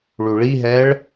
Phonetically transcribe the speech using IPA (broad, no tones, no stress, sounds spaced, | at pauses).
ɭ u ɭ i ɦ ɛ ɭ